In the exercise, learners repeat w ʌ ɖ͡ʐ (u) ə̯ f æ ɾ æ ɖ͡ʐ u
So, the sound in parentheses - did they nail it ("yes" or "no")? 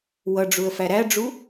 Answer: yes